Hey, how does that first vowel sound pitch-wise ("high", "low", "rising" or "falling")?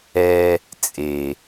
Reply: high